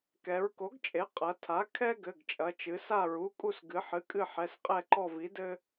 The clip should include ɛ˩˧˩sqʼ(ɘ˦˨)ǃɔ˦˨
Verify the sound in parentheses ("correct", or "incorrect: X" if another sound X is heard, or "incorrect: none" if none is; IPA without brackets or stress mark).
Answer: incorrect: ɛ˦˨